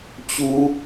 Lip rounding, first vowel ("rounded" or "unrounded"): rounded